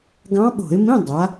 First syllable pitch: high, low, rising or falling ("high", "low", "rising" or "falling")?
rising